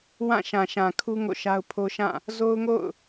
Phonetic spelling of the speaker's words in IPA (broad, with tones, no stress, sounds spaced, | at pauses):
w ã˦˨ ʃ ã˨ ʃ ã˨ kʰ u˦ ŋ o̰˦˨ ʃ a˦ ʊ̯ pʰ o˦ ʃ ã˦˨ | z o˦ ʊ̯ ŋ o̰˦˨ ʊ̯